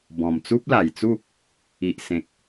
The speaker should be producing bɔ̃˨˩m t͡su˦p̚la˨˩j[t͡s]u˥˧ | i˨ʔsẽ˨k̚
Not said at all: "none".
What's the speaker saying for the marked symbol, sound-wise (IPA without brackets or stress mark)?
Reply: t͡s